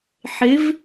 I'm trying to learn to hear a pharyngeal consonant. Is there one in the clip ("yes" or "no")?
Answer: yes